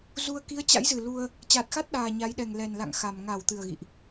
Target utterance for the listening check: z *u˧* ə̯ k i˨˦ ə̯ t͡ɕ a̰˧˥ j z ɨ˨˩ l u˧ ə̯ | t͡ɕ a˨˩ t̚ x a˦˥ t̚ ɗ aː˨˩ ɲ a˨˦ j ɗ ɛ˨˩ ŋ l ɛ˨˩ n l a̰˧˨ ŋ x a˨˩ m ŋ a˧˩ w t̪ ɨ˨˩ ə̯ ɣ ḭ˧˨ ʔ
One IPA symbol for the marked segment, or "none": u˧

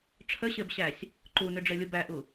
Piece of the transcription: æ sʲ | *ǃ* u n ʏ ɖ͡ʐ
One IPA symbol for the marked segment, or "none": ǃ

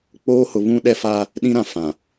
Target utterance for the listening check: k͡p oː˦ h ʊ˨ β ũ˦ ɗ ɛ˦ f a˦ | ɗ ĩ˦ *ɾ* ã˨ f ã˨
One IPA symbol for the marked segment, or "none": ɾ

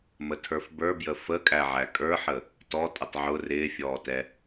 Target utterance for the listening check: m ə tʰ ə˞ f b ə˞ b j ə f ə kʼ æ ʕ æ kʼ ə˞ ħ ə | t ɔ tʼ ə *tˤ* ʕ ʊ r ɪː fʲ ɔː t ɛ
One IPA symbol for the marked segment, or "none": tˤ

